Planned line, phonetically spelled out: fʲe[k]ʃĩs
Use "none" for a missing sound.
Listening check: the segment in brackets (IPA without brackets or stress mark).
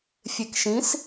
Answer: k